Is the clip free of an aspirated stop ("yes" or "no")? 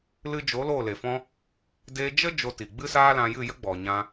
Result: yes